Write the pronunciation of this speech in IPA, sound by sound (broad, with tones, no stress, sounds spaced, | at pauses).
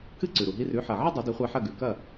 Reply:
k ɨ˥˩ ǀ ʉ˩ ɾ u˩ ɦ i˧ r ʉ˩˥ ħ ɐ˩ ʕ ɨ˥ dˤ u˩˥ d i˩˥ χʷ a˧ ħ ɐ˥˩ ɡ ʉ˩ k ɐ˥˩